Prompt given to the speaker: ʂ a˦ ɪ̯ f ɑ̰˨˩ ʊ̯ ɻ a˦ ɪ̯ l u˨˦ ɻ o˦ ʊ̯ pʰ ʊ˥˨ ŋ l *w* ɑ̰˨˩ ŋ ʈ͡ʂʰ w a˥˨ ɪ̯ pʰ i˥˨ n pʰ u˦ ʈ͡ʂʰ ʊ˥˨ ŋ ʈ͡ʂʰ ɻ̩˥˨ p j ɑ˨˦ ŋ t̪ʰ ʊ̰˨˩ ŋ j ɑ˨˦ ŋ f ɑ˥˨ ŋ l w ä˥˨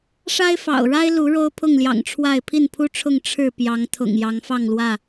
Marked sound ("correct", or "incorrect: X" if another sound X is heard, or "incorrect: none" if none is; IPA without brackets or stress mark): incorrect: j